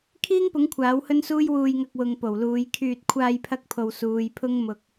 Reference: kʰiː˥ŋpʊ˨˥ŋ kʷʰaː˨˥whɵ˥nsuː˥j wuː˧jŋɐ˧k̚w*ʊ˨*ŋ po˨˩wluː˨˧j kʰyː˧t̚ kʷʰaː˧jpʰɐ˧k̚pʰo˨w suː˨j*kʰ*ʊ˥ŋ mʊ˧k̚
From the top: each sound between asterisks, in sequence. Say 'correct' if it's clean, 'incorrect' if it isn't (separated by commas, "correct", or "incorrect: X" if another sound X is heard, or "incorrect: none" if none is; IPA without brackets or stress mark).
correct, incorrect: pʰ